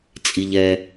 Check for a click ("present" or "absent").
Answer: absent